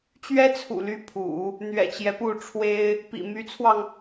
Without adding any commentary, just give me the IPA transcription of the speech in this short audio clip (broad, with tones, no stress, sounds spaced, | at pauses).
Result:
t͡ɕ ɥ ɛ˥ t͡sʰ ṵ˨˩ l y˥ pʰ ṵ˨˩˦ | n̪ ɥ ɛ̰˨˩ t͡ɕ j ɛ˦ p u˥˩ ʈ͡ʂʰ w e˥ ɪ̯ | p ḭ˨˩ m y˧˥ t͡sʰ w ɑ˧ ŋ